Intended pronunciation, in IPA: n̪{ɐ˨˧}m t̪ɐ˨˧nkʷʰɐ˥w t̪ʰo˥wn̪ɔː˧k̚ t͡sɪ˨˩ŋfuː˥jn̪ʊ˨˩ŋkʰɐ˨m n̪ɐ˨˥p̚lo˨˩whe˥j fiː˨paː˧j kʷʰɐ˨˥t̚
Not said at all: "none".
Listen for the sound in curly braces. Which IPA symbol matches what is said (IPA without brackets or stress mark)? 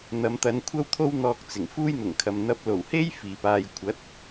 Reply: ɐ˨˧